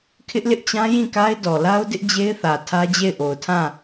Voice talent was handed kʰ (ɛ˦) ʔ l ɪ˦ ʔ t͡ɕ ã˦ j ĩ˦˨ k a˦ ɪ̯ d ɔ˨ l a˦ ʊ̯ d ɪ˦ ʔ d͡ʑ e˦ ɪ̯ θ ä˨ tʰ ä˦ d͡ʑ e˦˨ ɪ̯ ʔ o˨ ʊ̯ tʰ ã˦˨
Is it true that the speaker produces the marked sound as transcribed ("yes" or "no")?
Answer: no